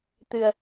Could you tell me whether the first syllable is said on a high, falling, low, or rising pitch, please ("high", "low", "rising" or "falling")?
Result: low